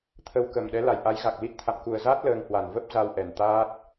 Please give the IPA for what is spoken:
t̪ʰə˨˦wkə˨˩mɗɛ˨˦ la˧˩jʔa˨˦jɣa˨˩k̚li˦˥t̚ t̪ʰa̰˧˨mku˨˩ə̯zaː˦˥t̚ ləː˧ŋhwa˧˩n və˦˥p̚za˧wʔɛ˨˩n t̪aː˦˥t̚

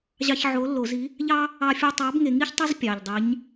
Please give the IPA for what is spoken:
ʑɑ˧çʕo˨˥lːo˧˩˧zi˨˥ | ʎɑ˥ | ɑ˧fʲo˧tˤɑ˨˥b ŋe˧ŋi˥çtˤə˥z pʲɑ˨˩ʎdˤi˨˥ɲ

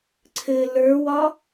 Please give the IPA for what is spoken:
ǀʰɘ lə˞wɒ

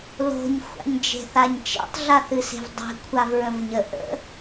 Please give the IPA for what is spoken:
lo̤ɲ xʷa̰ɲd͡ʒe̤θaɲt͡ʃḛtˤ ɮaθɨse̤vdˤe̤ kʷʰavɹə̃vɲə ʔə̰

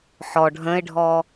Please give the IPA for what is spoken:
ħɔ ɖʱə̃ɪ̯ɖʱɔ

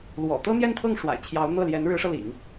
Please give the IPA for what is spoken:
lwɔ̰˨˩ t̪ɤ˥n̪jɛ˥˧nt̪ʰɤ˥˩ŋ ʂwa̰˨˩ɪ̯t͡ɕʰjɑ˧˥ʊ̯n̪ɤ˥˩ ljɛ˧˥nɻɻ̩˧˥ʂɤ˧lḭ˨˩˦ŋ

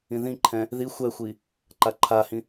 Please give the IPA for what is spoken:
ĩðĩǃʰɛ̃ | ði xʷɛxʷi | ǃaǃʰahĩ

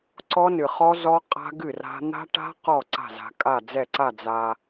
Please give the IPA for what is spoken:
ǀɔ˦˥nɨ˨χɔ˦˥ zɔ˦˥ qʼa̤˦˥ ɡɨ˥˩ra̤˦˥ n̪a̤˦˥ʈa̤˦˥ qɔ˥˩ ǀa̤˥˩za̤˨kʼa˥˩d͡zɛ˥˩ ǀa˥˩d͡za˨

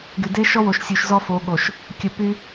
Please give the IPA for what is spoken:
ɡy˨de˦ ʃɔ˦wo˨ʃ sʲu˨ʃzɔ˦ fo˨˦ɠo˨ʃ | kʲə˨ py˦

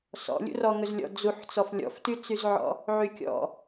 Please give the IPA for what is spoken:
sɔ̰lʲṵrɔ ŋɵzlʲɔ̰ d͡zuħt͡sɔf lʲɔ̰ftyt͡syzʕɔ̰ | ʕykʲɔ̰

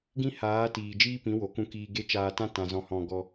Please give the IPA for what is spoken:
ɡĩ˦haː˨˦tiː˨ d͡ʒiː˦pĩ˨˦wo˨ kũ˧kiː˧ɡe˦ t͡ʃaː˧tã˦ tã˧ zɔ̃˧hɔ̃˧ ɡɔ˧

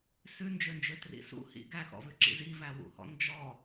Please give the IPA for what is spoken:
sʉnd͡ʒønd͡ʒøtrḭ sṵhḭ ɡæxɔ̰vʉǁḭ zivæwṵhɔ̰ nd͡ʒɔ

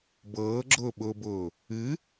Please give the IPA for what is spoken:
bɤːɡ͡ǁʊːɓʊːbʊː | ɨ

